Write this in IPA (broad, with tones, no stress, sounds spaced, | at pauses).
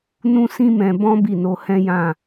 n ũ˦ s ĩ˦ m ɛ̃˧ b ɔ̃˦ b i˦˨ n o˧ h ɛ̃˦ j ã˦˨